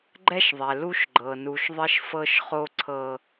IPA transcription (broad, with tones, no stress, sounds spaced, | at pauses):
ɡ͡ǃ ɛ˦ ʃ ðˤ ɛ˨ l u˦ ʃ ɡ͡ǃ ɤ˨ n u˨ ʃ ðˤ ɪ˦ ʃ f ɤ˦ ʃ χ o˦ ǀʰ ɤ˦